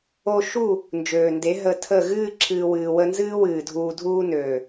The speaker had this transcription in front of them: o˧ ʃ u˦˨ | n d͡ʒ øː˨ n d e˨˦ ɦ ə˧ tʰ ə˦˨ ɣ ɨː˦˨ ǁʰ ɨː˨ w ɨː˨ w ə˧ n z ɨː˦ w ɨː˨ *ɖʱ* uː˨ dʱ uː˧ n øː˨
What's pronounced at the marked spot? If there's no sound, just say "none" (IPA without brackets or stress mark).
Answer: dʱ